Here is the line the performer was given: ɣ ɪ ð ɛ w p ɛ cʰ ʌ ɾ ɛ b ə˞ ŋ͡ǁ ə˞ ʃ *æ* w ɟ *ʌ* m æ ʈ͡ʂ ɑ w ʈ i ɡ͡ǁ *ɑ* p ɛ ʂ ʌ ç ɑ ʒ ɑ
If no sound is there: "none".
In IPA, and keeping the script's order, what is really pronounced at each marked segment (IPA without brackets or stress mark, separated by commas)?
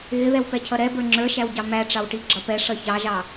æ, ɑ, ʌ